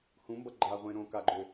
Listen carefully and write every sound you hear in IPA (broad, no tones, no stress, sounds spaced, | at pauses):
h ũ m b ʌ ɡ͡ǃ a ʁʷ ẽ ɾ õ k a ɡ͡ǃ ø